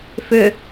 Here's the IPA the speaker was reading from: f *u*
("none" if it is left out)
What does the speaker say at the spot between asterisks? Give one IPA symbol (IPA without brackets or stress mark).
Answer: ʏ